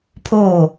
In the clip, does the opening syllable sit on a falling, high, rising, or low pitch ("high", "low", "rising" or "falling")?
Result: falling